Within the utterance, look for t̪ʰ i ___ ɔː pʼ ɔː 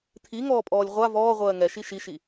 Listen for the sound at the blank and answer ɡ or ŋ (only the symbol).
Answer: ŋ